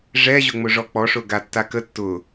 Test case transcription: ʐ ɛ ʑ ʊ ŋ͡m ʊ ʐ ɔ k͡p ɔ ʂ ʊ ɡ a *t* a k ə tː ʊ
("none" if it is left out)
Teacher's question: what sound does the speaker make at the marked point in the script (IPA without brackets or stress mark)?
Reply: tː